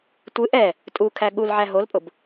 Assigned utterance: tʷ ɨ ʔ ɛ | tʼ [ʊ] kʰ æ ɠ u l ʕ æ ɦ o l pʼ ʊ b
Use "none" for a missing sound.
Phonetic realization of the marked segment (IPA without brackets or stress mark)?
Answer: u